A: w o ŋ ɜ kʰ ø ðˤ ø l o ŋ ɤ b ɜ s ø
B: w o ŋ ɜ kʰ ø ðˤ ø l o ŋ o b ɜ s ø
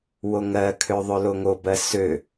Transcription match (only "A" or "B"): B